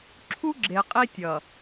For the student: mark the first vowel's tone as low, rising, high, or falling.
high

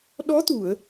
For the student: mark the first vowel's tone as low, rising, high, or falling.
rising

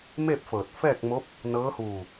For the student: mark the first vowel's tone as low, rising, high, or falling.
falling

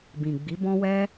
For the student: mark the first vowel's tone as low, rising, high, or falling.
low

